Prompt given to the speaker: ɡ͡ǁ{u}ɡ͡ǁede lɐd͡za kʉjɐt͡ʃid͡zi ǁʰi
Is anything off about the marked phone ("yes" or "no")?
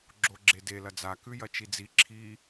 yes